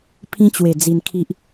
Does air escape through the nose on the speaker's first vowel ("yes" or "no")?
yes